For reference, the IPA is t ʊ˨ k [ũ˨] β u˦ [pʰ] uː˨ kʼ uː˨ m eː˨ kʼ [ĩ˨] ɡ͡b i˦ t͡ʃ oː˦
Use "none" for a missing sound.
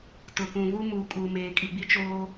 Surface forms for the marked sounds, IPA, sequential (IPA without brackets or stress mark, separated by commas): ũ˨, m, i˨